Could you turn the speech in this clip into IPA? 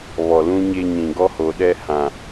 βɔ˨lũ˦ɲe˦ɲĩ˨ ɡɔ˦ho˨ɗɛ˦ hã˨

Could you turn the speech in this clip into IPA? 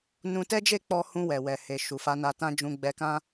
nũ˧tɛ˦d͡ʒe˦˨k͡pɔ˧ hũ˧wɛ˨wɛ˨he˨ ʃu˨ fa˧na˧tã˦ d͡ʒũ˧ɡ͡bɛ˧kã˦

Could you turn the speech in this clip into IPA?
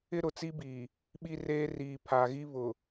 ɪ˦ɾʊ˨t͡si˦biː˨ | ɓi˦reː˦ riː˨pʰa˨ɣi˦ βʊ˨

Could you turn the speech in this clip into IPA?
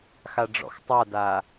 xaɖ͡ʐɔ̰xtˤadaː

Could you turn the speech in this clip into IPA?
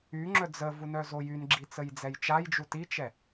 yŋ͡ǁœ d͡zəvunœ zojynɡ͡ǁi t͡səjd͡zɛjt͡ʃajd͡ʒu tit͡ʃɛ

